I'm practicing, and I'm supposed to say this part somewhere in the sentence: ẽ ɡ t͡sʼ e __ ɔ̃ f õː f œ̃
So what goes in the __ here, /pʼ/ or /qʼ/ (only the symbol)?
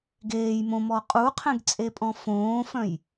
pʼ